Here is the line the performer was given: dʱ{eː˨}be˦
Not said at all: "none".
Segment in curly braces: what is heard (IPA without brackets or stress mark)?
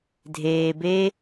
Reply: eː˨